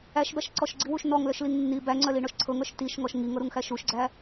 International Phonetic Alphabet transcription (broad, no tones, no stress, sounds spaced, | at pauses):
æ ʃ b æ ʃ ǀ ɔ ʃ ɡ͡ǀ i w u ʃ n ɔ ŋ l œ ʃ l i ŋ nː i b æ ŋ͡ǀ œ l i ɳ ɔ ʃ ǀʰ ɤ ŋ œ ʃ t i ʃ ŋ ɔ ʃ ŋ i ŋ ɤ ɾ u ŋ x æ ʃ u ʃ ɡ͡ǀ æ